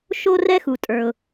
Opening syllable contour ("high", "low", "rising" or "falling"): high